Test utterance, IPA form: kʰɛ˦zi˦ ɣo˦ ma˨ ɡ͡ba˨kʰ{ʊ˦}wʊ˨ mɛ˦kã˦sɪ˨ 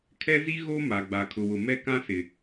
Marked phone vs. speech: incorrect: ʊ˨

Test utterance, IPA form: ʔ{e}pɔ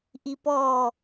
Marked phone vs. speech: incorrect: i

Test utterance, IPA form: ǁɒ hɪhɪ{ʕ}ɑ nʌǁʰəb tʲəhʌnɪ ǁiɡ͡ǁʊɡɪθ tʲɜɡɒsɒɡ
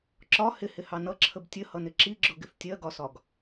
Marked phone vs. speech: incorrect: h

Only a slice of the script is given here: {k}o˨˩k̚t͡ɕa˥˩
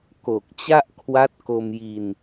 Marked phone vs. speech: correct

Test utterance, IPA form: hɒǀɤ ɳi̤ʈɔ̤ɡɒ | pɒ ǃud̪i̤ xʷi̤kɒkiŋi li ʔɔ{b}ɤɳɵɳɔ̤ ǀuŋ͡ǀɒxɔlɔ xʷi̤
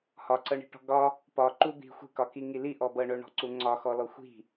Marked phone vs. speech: correct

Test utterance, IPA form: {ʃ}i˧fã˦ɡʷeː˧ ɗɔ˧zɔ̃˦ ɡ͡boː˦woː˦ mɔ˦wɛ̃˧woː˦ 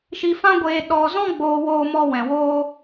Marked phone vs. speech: correct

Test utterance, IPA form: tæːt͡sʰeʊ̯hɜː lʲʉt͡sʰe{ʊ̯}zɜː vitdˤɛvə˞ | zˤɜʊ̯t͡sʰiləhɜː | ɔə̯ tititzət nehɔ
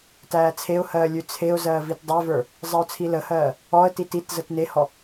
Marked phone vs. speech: correct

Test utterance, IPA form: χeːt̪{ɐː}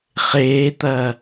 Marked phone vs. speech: correct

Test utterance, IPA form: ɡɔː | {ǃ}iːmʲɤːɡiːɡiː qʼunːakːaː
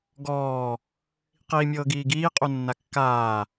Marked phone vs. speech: incorrect: q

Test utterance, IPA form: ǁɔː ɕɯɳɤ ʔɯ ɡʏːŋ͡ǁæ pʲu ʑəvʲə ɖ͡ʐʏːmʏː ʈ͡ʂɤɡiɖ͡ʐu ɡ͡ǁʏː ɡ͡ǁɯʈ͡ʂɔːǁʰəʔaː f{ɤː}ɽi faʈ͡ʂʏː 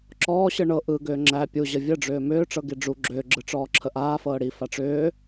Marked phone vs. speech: correct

